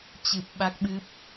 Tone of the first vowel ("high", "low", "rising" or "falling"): low